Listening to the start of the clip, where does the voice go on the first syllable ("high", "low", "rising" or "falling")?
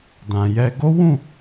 low